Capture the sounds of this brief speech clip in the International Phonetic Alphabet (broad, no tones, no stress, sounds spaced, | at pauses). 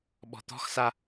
ɓ ɔ̤ t̪ ɔ̤ x s a